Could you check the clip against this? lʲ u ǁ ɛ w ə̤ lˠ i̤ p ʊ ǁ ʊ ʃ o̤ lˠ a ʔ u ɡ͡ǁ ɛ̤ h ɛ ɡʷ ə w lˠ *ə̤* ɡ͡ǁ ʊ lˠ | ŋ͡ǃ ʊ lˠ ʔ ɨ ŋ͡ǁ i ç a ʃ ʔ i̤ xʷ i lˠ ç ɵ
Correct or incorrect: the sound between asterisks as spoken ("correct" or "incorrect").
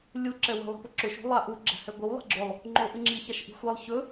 incorrect